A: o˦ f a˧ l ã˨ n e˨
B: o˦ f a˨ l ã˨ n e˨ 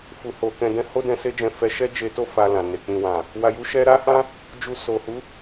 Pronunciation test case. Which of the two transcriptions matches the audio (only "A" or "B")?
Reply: A